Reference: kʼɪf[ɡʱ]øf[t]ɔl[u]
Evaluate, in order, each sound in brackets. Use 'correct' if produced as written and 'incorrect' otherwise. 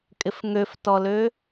incorrect, correct, incorrect

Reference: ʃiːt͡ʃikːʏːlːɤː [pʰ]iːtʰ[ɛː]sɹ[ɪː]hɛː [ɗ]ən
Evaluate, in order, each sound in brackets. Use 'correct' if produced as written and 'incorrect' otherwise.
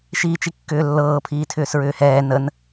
correct, incorrect, incorrect, incorrect

